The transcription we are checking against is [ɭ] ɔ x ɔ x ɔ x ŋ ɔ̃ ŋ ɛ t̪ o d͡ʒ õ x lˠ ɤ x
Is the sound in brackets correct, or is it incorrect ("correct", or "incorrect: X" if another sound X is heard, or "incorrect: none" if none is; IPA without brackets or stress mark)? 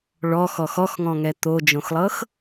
correct